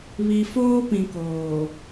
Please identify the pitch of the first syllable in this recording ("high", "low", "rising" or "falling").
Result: low